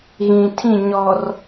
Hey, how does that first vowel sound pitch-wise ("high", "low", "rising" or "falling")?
low